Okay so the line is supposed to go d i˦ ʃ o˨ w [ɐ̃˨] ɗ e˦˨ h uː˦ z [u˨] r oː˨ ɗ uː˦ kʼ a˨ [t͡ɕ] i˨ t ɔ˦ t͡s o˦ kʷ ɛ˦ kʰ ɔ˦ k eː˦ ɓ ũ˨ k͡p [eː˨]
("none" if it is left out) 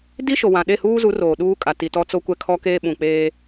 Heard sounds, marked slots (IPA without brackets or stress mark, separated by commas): ã˨, u˨˦, t, eː˦